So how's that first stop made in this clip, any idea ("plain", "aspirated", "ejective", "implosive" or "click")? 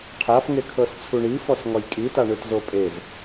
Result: aspirated